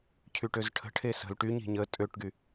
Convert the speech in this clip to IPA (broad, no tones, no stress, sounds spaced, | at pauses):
cʰ y ʈ ø z ʈʰ ə̤ ʈʰ e s ə̤ l ʈ y ɲ i̤ ɲ ə tʼ ø ʈ ɡ y